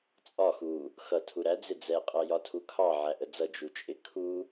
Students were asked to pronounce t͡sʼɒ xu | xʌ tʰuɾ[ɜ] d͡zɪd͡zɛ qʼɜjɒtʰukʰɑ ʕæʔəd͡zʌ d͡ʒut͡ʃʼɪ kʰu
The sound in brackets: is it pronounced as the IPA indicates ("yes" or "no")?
no